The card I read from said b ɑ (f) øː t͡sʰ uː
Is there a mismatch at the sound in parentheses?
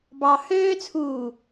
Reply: yes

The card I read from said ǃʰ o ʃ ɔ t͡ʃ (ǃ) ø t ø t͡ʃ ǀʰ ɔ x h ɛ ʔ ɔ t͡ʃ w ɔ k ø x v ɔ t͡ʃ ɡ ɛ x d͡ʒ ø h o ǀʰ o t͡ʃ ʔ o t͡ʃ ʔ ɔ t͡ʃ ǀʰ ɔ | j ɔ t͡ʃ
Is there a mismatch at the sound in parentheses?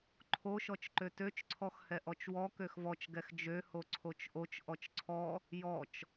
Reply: no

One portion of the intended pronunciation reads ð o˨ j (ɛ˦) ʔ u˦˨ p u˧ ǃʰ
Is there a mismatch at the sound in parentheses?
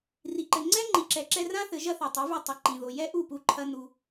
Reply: no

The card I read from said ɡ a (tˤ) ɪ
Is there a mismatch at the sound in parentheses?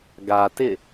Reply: yes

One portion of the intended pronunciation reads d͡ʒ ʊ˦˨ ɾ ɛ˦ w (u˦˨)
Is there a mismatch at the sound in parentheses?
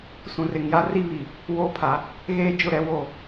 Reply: yes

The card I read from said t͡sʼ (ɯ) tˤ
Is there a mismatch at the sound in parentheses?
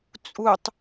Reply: yes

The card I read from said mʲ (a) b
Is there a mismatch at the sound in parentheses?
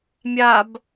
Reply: no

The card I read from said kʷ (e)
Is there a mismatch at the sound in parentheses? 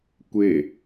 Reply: no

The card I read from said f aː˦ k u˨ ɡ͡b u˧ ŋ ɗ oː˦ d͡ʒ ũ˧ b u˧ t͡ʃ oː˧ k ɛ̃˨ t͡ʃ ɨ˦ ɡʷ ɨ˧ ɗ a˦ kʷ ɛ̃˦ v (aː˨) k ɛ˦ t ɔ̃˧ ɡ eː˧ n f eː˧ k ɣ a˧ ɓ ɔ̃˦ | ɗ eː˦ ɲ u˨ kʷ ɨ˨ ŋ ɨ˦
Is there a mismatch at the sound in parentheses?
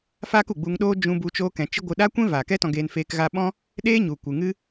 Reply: no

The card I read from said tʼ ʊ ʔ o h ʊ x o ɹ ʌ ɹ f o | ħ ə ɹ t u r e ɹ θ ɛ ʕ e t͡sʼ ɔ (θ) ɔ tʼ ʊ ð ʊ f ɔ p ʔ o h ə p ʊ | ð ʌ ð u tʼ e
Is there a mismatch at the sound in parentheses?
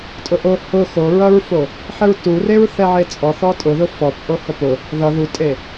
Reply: no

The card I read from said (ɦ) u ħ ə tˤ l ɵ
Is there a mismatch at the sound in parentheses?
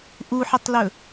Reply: yes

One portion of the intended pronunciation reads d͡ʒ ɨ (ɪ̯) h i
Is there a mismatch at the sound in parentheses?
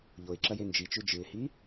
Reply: no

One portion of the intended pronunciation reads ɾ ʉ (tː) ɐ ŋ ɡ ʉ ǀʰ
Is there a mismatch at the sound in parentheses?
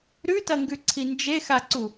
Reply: yes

